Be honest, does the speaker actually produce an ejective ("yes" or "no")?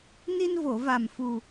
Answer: no